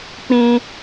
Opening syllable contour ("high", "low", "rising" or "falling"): high